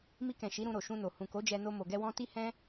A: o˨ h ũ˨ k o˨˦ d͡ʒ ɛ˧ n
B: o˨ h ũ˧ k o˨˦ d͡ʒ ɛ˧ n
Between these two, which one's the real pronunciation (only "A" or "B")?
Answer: A